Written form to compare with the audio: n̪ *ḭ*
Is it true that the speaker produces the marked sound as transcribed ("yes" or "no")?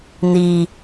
no